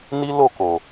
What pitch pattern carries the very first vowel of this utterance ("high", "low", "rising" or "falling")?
high